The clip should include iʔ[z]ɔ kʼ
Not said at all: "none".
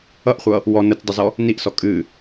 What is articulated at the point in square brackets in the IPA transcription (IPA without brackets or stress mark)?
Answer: s